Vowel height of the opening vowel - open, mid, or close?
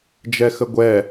mid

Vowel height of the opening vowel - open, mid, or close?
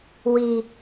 close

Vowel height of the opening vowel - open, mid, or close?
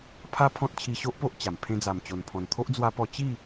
open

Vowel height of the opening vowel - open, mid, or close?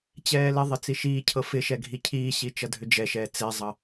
mid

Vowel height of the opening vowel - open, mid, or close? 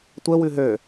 mid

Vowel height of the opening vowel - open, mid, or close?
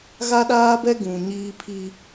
open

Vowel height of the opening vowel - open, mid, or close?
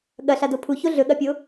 open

